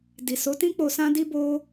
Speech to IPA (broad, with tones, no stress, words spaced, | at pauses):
di˨so˨˦tĩ˦k͡po˧ sã˦di˦bo˦